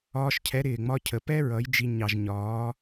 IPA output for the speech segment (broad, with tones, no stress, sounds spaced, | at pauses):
ɒː˧ ʃ cʰ ɛ˨˦ ɾ ɪː˨ ŋ͡m ɒ˦ cʰ ə˨ p ɛ˦ ɹ ʌ˨˦ j d͡ʒ i˧ ɲ ɑ˨ ʒ ɲ ɒː˨˦